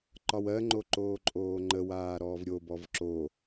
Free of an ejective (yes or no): no